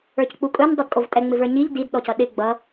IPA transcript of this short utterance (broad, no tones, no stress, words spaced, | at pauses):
ə˞ck͡pukʼɵn dˤudkʼovtʼɛ ŋ͡mɪvə˞ɲiʎ did ɗɔcʌɗɪ ɡ͡bʌ